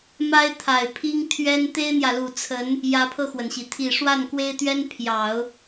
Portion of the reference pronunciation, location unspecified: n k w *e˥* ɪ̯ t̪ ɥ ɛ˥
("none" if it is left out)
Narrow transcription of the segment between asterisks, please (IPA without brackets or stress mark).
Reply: e˥